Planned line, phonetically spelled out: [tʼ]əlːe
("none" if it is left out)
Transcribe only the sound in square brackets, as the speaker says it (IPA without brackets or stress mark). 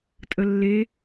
tʼ